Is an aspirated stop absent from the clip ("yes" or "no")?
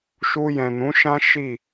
yes